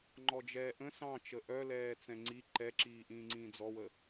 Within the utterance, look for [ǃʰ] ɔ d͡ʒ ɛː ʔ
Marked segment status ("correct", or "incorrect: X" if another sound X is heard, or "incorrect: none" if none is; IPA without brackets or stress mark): incorrect: ŋ͡ǃ